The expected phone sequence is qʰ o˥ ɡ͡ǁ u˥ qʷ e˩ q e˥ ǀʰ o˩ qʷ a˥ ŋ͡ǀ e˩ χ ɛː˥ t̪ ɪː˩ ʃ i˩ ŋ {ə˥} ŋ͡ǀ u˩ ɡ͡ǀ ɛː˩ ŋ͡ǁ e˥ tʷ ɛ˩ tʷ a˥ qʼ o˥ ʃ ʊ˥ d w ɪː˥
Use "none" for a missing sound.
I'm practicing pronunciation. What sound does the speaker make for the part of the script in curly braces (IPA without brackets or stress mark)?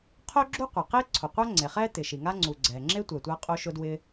a˥